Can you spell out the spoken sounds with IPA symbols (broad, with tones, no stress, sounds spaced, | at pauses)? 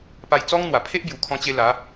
p a˧ j t͡s ɔ˦ ŋ n̪ w a˨˩ pʰ e˦ ʔ b j u˨˩ kʰ ɔ̃˧ t͡ɕ e˧ l a˨˦